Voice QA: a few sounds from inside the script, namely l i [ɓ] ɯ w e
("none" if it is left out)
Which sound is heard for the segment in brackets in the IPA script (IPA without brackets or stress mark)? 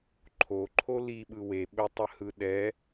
ɓ